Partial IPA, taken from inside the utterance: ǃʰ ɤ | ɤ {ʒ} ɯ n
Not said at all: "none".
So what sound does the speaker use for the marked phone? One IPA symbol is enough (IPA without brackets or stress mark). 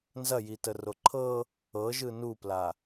ʒ